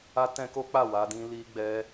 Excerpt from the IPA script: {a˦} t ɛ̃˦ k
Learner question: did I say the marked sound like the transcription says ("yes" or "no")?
yes